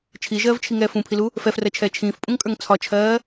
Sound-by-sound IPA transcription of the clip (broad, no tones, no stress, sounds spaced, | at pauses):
t͡ʃʰ i ʒ ɜː v t͡ʃʰ i ŋ ɛː f ũ pʰ i l u | f ɛ f r ɜ t͡ʃʰ ɛː t͡ʃʰ ĩː f pʼ ũ ŋ kʼ ə˞ ŋ t͡sʰ ɒ t͡ʃʰ ɜː